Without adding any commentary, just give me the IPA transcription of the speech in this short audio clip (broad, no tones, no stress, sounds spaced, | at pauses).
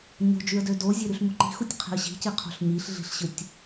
ɲ o̤ d͡ʒ y ə̯ d ø d o zʲ e ɾ y ɬ m u ǃ i̤ x u tʲ qʰ i̤ ə̯ ɕ i̤ c i qʰ o̤ ɬ ɲ i ɬ ɮ i̤ ɬ ɕ ɯ tʲ